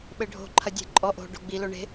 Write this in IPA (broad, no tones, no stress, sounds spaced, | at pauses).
ɓ ɘ ɖʱ o̤ ǃʰ ɐ dʲ e̤ ǃʼ ɔ ʔ o̤ ɖ o̤ ɡ͡b i l o ɳ e̤